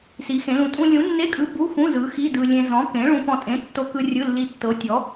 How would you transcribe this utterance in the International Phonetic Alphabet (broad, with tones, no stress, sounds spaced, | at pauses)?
s i˨˥ x ẽ˨˥ l ũ˧ tʼ ũ˧ lʲ ũ˨˥ nː e˧˥˧ kʼ ɯ˨˥ b u˧˥˧ x ũ˧˥˧ z ɯ˨˥ x i˧˥˧ d ɯ˧ lʲ ẽ˧ z ɔ̃˨˥ k ẽ˨˥ ɭ ũ˧ p ɔ̃˧ tʼ ẽ˨˥ tː o˧ k ɯ˧ rʲ ɯ˧˥˧ lː i˧ tː ɤ˨˥ tʲ ɔ˨˥